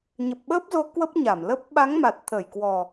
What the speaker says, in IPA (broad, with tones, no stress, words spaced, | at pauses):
ɲə˨˩p̚ɓəː˦˥p̚zo˨˦ kwə˦˥p̚ɲa˧˩mlə˦˥p̚ ɓa˨˦ŋma˨˩t̚t̪ʰə˧˩jkwɔ˨˩